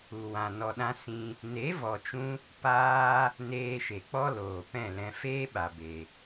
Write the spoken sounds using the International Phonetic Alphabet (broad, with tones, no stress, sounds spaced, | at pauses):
u˨ w ã˨ n ɔ˨ ɗ ã˧ s ĩ˧ | n e˨˦ v ɔ˨ t͡ʃ ũ˧ | p aː˧ | n eː˧ ʃ e˨ k͡p ɔ˦ l oː˨ p ɛ̃˦˨ l ɛ̃˧ f eː˦ ɓ a˨ b e˨